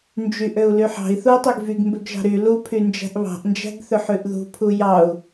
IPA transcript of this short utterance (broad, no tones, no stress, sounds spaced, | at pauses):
n d͡ʒ y ʔ ø u̯ l y ħ ɑ̤ i̯ θ u i̯ tˤ ø ɡ v y ɡ m b ø ɡ ʒ ɑ̤ ɾ y l u pʰ y n d͡ʒ æ̤ ʔ β ɑ̤ ʔ n d͡ʒ æ̤ ɡ θ ø ħ ʉ ʔ ð ṳ pʰ u j ɑ u̯